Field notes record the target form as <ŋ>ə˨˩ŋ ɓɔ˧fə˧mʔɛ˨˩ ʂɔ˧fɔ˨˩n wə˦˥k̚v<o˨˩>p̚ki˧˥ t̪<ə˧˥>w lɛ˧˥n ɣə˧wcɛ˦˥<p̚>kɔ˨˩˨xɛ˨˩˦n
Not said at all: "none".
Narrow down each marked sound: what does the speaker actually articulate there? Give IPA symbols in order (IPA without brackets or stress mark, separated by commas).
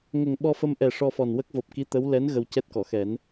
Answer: ŋ, o˨˩, ə˧˥, t̚